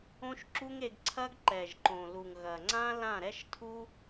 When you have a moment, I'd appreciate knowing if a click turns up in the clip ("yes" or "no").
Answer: yes